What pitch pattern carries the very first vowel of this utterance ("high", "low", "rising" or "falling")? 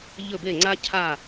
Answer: falling